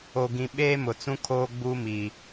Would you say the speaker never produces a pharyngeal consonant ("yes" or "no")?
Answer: yes